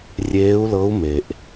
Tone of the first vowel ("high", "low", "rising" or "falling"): rising